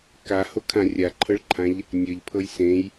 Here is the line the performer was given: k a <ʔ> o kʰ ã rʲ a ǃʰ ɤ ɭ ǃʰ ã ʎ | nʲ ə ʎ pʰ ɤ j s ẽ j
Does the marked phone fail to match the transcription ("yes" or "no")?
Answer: yes